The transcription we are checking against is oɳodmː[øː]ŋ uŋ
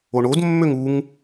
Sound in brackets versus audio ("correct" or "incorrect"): incorrect